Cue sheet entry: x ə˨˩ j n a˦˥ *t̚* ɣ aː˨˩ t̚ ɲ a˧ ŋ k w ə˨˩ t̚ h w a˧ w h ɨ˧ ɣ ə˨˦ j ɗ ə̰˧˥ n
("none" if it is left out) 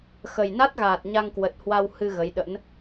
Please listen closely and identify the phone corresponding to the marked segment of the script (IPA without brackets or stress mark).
t̚